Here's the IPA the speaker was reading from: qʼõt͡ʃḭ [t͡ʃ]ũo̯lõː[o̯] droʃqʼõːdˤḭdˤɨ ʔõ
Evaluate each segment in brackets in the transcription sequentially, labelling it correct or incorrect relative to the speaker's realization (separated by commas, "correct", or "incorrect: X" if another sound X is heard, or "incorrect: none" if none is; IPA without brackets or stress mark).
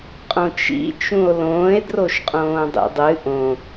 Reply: correct, incorrect: e̯